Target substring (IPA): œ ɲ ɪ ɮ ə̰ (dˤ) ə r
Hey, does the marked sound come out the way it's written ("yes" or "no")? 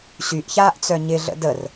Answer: no